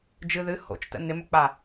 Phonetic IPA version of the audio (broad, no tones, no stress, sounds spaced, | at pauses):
d͡ʒ ɨ ð ɨ h o̰ t͡ʃ t ə̰ n ɪ m ɵ k͡p a